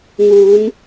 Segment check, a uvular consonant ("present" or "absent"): absent